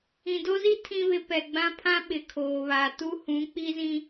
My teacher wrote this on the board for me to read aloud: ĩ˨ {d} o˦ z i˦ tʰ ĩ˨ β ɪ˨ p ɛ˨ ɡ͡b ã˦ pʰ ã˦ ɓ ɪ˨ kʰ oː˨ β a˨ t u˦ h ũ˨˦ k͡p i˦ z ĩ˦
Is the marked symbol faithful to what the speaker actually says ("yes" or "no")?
yes